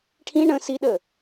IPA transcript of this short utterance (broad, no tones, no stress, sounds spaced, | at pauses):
ʈʰ ĩ ɳ ə̃ s i ɗ ə